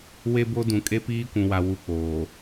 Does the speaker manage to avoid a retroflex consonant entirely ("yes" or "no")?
yes